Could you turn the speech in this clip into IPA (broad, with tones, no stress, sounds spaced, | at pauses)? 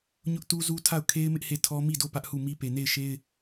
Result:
ɲ ʊ˦ ʔ t u˦ z u˦ tʰ a˦˨ ʊ̯ kʰ e˦ ɪ̯ m ɪ˦ ʔ h e˦˨ tʰ ɔ˦ m i˦˨ d o˦˨ p ä˦ ʔ h u˦˨ m i˦ p e˨ n e˦˨ ɪ̯ ʃ e˦ ɪ̯